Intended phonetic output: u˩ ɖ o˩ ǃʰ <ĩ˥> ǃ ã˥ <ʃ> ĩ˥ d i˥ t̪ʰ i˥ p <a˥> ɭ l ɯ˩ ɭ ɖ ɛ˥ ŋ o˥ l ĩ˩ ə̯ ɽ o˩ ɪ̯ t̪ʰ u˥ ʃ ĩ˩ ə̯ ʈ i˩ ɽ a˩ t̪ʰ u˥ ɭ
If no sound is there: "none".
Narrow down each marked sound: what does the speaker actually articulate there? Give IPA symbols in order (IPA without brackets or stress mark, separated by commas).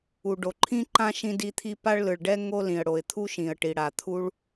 ĩ˥, ʃ, a˥